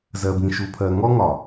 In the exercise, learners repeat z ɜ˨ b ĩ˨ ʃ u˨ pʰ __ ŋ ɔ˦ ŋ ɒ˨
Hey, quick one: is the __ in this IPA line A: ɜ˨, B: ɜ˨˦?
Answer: A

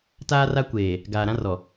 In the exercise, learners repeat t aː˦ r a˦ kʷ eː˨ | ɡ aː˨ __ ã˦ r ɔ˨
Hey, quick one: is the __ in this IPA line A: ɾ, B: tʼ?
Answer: A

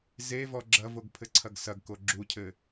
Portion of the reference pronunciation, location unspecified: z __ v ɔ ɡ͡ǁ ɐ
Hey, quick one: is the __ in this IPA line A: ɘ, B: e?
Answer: B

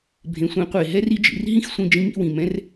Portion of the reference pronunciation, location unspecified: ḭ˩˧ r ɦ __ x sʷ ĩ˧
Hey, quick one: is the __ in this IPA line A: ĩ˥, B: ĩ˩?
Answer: A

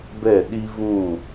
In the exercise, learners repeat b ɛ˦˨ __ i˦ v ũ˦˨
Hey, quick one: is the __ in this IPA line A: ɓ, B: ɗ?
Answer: B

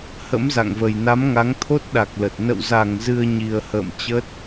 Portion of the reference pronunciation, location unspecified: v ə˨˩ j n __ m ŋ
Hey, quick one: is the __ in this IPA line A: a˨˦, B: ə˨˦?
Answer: A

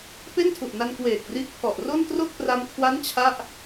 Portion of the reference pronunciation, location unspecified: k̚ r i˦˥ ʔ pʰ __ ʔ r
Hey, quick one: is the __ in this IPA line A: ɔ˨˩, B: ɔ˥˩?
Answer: A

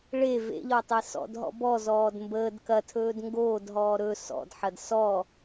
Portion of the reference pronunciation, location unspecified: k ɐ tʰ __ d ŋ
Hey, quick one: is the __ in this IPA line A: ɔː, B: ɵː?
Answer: B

